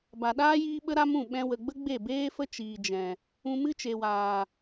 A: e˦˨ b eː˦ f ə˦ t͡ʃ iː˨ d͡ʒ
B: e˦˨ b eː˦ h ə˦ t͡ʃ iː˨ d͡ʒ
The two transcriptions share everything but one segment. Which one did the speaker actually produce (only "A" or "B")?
A